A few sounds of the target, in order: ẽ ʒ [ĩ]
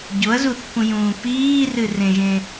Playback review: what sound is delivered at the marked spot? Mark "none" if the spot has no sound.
ẽ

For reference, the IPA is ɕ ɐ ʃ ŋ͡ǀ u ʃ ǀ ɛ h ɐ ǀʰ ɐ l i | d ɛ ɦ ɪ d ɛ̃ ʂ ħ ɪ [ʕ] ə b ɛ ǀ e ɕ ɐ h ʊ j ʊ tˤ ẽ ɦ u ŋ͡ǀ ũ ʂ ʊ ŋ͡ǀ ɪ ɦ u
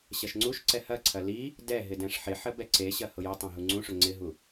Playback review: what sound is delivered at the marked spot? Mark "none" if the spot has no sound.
ħ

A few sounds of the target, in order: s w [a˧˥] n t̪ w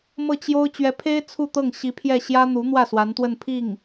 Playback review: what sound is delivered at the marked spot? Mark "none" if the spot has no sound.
a˧˥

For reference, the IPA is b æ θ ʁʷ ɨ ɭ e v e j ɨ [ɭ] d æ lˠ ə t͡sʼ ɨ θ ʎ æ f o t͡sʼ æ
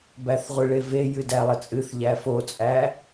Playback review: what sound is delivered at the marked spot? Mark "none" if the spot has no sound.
none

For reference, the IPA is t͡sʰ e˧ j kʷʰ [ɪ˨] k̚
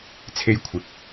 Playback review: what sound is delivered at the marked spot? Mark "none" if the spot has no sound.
ɪ˨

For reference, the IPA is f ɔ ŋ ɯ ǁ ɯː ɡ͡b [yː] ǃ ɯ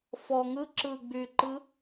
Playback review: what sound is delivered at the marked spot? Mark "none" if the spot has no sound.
yː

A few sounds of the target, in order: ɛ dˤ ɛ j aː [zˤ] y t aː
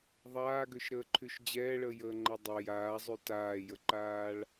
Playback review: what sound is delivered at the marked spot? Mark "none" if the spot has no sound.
zˤ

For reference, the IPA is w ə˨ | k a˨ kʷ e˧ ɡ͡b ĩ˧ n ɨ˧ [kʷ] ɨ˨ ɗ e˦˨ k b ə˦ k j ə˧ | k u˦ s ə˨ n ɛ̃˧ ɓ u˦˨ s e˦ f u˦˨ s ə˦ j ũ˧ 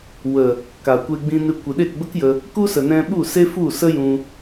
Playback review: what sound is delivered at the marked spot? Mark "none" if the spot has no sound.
kʷ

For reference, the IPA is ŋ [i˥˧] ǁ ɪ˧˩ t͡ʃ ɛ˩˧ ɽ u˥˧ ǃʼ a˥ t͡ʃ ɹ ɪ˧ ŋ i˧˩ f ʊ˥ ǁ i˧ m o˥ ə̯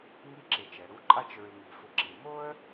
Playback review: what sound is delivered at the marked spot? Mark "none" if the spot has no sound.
i˥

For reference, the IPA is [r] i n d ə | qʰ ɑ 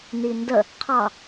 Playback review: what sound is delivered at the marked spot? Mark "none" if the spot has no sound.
n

